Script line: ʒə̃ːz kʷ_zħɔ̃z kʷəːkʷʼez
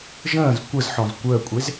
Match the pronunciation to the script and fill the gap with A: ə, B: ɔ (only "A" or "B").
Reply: A